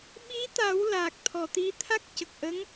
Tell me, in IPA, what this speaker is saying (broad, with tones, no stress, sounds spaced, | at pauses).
ɓ i˧˥ t̪ a˨˩˦ w l aː˨˩ k̚ t̪ʰ ɔ˨˩ t̪ i˧˥ t̪ʰ a˦˥ k̚ c ə˨˩ k̚ ʔ ə˧˥ ŋ